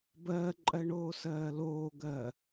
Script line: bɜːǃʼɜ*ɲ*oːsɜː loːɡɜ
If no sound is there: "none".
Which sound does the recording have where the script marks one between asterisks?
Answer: ɳ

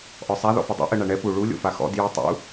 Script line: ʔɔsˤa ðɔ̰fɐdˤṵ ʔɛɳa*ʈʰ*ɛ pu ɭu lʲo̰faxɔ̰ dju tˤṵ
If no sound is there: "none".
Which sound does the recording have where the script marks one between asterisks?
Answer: ɳ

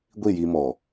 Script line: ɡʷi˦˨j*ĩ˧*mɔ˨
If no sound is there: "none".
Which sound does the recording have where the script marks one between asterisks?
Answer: i˧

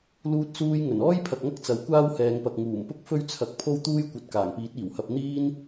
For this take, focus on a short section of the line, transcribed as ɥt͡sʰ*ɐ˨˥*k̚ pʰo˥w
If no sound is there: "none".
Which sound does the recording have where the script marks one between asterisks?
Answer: ɐ˨˥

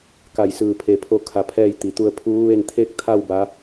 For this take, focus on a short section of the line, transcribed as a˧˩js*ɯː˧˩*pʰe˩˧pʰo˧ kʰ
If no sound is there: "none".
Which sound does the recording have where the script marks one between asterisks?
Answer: ɯː˧˩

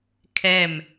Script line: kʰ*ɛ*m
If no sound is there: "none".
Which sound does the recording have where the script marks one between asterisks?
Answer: ɛ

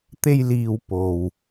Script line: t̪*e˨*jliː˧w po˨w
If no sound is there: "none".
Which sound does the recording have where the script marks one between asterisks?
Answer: e˥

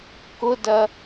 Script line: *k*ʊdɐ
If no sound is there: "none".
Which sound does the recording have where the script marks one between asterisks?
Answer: k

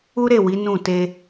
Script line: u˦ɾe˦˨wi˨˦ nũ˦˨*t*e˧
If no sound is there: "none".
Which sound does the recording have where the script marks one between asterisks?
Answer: t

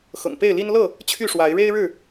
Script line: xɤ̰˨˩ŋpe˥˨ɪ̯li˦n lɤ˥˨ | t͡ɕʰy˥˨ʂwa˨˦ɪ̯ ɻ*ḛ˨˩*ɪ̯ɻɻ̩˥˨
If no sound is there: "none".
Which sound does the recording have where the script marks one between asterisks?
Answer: e˦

